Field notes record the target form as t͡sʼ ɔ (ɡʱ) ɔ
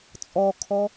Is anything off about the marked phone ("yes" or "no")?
yes